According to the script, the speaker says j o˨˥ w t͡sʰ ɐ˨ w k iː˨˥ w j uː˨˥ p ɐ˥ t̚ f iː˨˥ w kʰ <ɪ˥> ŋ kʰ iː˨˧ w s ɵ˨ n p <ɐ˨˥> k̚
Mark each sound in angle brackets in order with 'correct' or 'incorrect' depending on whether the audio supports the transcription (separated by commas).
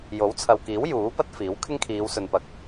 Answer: correct, correct